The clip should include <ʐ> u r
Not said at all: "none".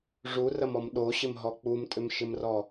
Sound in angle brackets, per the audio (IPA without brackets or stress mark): ʐ